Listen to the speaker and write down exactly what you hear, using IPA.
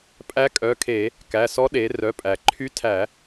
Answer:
pʼ æ˧˥ kʼ œ˩˧˩ kʰ e˧˩˧ | k æ˩˧˩ s ɔ˧˥ ɗ e˩˧ r œ˩˧˩ pʼ æ˩ ǃʰ y˧˥ tʰ æ˧˩˧

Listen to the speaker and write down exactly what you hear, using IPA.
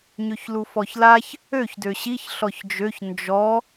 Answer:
ɲ ø ç l u f ɔ ç l a ç | ø ç d ø ɕ i ç ɬ ɔ ç d͡ʒ ø ç n d͡ʒ ɔ

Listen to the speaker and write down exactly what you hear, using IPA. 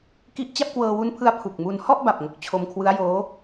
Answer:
k i˥˩ ʔ t͡ɕ a˥˩ p̚ k w ɤː˧ w u˦˥ n pʰ ɯ˦˥ a̯ pʰ u˨˩ k̚ m u˧ n h ɔ˥˩ ʔ b a˨˩ p̚ ŋ o˨˩ k̚ t͡ɕʰ o˧ m kʰ w ɯ˦˥ a̯ j oː˦˥

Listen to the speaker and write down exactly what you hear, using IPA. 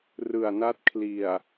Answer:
r ɯ˨˩ a̯ n a˦˥ t̚ kʰ l i˨˩ a̯

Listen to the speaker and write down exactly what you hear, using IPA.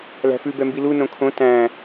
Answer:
l æ̤ f ʉ b ɛ m b i l u n õ kʰ õ t æ̃

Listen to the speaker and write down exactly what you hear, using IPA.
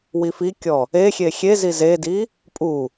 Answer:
w i f i kʲ ɔ | e xʲ e xʲ e z i z e d i | pʼ u

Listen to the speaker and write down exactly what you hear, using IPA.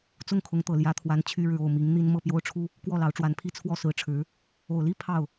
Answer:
t͡s ʊ˥˩ ŋ kʰ ʊ˧˥ ŋ t̪ ɤ˨˩ l j ä˧˥ t̪ʰ w a˧˥ n t͡ɕʰ y˥ ɻ ɻ̩˥˧ o˥˩ ʊ̯ m i˧˥ ŋ n̪ i˥ n m ɤ˥˩ p j o˥ ʊ̯ ʈ͡ʂʰ u˥ | k w ɔ˥˩ l ɑ˧˥ ʊ̯ ʈ͡ʂ w a˧˥ n pʰ i˥˧ t͡sʰ w ɔ˥˩ s ɹ̩˧˥ ʈ͡ʂʰ ɻ̩˧˥ | o˨˩ ʊ̯ l i˥ pʰ ɑ˥˩ ʊ̯

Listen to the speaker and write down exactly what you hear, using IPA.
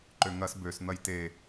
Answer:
ǃ ø ŋ ɐ s b ø s n̪ ɐ j t e

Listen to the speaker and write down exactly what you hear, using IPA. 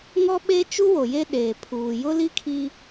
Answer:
ŋ ɔ˦ ɓ e˦ t͡ʃ u˦ w o˨ j e˦ ɗ eː˨ pʰ uː˨ j ʊ˦ l i˦ kʰ i˦

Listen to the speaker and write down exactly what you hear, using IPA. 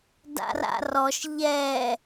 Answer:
d a̰ r a̰ r ɔ ʃ ʎ ɛ

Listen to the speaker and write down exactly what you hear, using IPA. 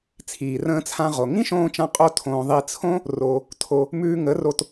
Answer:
t͡sʰ iː˨ r ə̃ː˧ t͡sʰ ã˧ ʁ o˨ ŋ ĩ˦ ʃ õː˧ t͡ʃ ã˧ qʼ o˦ tʰ õː˧ ðˤ i˧ t͡sʰ õ˦ | r o˧ | tʰ o˧ | m ʉː˧ ŋ ə˨˦ r o˧ t

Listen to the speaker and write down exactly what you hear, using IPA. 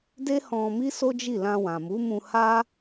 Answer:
d e˦ h ɔ̃˧ m i˦ s o˦ d͡ʒ i˦˨ l ã˧ w ã˨ m u˨˦ m ũ˧ h a˦

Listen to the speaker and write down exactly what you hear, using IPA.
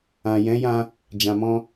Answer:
ã˨ j ɛ̃˨˦ j ã˧ | d͡ʒ ã˨ m ɔ̃˧

